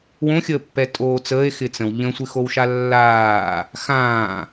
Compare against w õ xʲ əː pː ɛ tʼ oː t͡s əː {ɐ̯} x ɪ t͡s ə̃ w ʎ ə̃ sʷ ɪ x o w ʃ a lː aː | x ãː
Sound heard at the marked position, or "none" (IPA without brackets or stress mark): e̯